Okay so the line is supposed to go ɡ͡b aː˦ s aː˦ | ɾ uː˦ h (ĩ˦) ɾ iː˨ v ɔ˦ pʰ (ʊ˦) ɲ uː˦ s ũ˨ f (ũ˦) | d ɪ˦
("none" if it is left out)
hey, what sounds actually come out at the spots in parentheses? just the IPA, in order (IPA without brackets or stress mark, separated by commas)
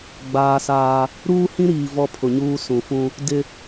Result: ĩ˦, ʊ˨, ũ˦